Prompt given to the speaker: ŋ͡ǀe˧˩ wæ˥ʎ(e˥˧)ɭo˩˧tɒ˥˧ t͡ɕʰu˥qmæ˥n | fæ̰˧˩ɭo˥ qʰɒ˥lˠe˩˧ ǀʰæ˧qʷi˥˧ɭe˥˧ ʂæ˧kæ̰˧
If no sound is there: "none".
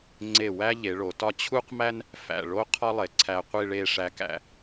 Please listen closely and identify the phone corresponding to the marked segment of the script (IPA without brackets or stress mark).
e˩˧